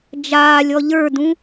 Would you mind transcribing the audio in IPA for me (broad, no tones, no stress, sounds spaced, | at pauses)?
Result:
d͡ʒ aː lʲ ɔ ʎ ə˞ d ũ